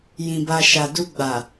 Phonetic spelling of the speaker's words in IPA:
j ĩ˨ b a˨ ʃ a˨ d u˧ ɡ͡b a˨

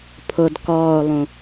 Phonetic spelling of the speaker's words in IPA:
pʰ ʊ d k ɔː o̯ lˠ ũ

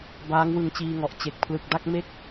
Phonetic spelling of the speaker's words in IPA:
b aː˦˥ ŋ w ɯ˧ ŋ t͡ɕ iː˧ ŋ ɔ˨˩ ʔ t͡ɕ e˨˩ k̚ pʰ l ɯ˨˩ k̚ d a˥˩ k̚ m e˥˩ k̚

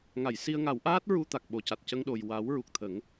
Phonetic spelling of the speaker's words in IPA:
ŋ a˨˩˨ j s i˧ ə̯ ŋ a˨˩˦ w ʔ aː˦˥ t̚ ɹ u˧ t̪ a˨˩ k̚ ɓ o˨˩ c a˨˩ t̚ c ə˧ ŋ ɗ o˨˩ j w a˨˩˦ w ɹ u˨˩ k̚ t̪ʰ ə˨˩˦ ŋ

